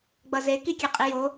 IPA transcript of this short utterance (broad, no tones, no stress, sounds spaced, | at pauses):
ɡ͡b ʌ z e k i kʲ e qʼ i j o